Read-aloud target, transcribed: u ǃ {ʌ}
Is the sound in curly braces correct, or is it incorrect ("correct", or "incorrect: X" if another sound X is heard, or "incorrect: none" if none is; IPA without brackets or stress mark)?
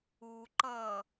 correct